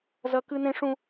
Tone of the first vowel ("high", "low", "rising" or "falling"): high